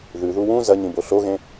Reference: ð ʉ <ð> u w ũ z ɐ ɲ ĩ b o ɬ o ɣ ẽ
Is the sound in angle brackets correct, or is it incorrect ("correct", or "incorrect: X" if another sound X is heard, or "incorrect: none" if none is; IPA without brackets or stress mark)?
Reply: correct